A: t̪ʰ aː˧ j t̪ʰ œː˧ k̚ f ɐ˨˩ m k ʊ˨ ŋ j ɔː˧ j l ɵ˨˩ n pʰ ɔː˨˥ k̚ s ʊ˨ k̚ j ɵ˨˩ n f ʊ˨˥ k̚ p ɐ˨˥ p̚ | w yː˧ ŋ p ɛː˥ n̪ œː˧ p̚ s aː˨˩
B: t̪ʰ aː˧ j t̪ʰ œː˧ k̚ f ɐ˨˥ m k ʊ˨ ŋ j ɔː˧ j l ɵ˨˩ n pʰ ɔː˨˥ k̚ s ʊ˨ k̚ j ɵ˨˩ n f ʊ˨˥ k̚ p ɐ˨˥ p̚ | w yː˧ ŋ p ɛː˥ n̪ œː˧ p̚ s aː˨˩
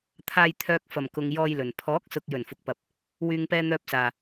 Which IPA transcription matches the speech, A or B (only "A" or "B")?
A